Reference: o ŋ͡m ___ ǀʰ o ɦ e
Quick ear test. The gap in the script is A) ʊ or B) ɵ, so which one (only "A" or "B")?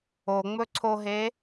B